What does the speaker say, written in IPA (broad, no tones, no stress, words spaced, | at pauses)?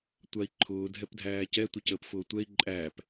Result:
tʷai̯ǃʰʊː dʱɛpdʱæːcɛ tʷəcəːpfʊːtʷɛi̯ ǃʼæːp